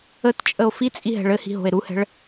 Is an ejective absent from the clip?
no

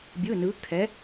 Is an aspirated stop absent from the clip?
no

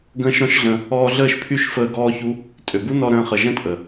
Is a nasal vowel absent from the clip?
no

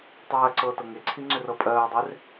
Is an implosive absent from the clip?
yes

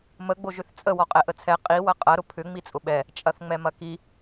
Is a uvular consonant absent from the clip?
no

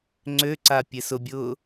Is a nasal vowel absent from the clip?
yes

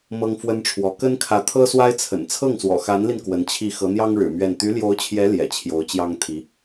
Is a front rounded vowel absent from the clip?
no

